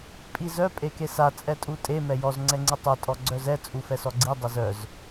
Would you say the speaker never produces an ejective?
no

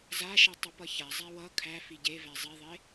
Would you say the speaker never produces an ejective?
yes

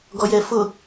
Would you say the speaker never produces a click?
yes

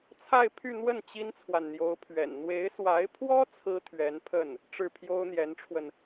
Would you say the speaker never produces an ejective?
yes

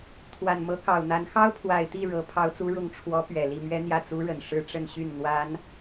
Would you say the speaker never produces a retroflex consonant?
no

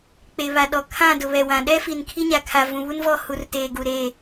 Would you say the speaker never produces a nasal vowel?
no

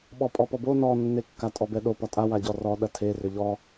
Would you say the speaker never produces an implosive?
no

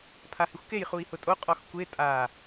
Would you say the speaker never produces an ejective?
no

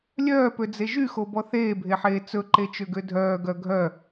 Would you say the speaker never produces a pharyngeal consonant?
no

